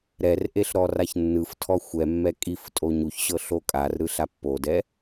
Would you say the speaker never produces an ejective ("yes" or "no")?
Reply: no